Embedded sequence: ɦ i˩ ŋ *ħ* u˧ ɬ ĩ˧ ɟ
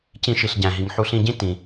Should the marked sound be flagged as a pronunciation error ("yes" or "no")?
no